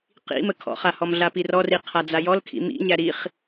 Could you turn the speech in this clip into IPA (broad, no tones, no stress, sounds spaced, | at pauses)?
q ḭ m ə kʰ ɔ̰ χ a h ɔ m ɮ a p i r ɔ r i qʰ a d͡z a j ɔ l kʰ ḭ m ḭ ɲ æ ɾ i χ